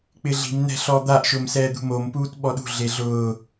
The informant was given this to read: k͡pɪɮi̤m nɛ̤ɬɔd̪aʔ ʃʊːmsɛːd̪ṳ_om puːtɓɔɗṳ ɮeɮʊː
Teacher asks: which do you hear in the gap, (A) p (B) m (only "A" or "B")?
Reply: B